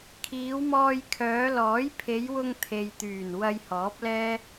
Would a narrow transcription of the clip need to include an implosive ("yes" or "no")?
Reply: no